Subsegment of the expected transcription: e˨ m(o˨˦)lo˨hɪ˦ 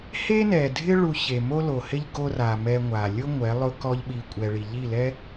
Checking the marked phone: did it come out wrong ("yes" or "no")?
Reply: yes